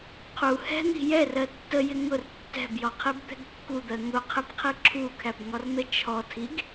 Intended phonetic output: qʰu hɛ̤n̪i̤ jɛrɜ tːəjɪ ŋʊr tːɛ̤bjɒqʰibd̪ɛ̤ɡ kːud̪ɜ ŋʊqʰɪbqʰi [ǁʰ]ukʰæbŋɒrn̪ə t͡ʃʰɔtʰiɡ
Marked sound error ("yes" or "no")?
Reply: no